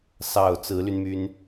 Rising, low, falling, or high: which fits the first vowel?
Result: low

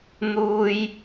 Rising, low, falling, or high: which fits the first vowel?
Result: high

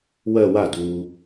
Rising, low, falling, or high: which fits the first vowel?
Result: falling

